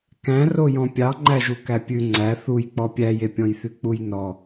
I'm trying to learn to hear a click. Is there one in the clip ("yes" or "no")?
yes